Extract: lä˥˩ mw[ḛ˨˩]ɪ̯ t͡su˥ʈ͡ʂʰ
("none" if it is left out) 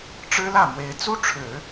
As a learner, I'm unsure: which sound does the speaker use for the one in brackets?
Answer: e˧˥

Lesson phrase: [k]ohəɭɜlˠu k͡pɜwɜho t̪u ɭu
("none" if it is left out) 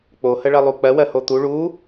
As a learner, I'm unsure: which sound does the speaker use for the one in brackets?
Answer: k͡p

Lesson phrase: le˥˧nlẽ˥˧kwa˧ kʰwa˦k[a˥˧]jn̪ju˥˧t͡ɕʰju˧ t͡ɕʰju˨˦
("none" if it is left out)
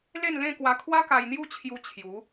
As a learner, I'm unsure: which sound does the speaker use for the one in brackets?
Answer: a˧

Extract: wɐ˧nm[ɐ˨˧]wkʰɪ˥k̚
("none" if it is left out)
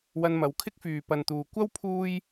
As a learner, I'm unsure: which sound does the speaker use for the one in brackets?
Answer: ɐ˨˧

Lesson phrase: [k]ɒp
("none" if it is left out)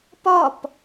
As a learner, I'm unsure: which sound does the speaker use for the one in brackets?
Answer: p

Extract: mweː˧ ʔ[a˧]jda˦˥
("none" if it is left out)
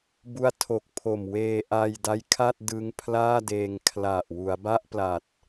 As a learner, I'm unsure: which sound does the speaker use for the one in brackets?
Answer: a˧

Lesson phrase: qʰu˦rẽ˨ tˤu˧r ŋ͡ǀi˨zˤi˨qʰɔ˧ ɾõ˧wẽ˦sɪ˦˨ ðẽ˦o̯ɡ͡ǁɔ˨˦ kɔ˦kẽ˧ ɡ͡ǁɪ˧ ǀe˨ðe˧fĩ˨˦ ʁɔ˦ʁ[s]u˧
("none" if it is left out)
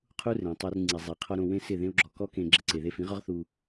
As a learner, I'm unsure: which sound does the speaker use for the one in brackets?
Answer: θ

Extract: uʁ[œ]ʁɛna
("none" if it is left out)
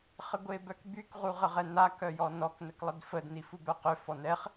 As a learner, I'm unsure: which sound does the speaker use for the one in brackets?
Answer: ə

